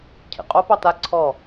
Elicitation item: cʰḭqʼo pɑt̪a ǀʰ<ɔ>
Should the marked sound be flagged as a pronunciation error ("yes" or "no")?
no